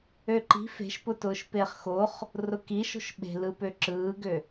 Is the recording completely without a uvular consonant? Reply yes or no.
no